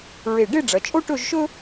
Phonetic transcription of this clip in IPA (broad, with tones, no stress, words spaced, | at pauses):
ɹe˧˩ ɖe˥˧ɖ͡ʐɐ˩˧ t͡ʃʼo˥ʈɵ˥˧ʒʃɵ˥